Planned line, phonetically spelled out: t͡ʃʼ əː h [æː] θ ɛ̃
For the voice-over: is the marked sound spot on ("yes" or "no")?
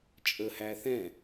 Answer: yes